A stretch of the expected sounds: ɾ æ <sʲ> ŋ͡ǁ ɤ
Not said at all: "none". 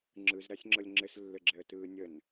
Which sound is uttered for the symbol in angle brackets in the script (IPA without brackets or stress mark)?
sʲ